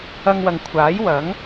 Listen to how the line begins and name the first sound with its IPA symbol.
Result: ɐ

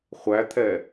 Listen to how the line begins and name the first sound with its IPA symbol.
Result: χʷ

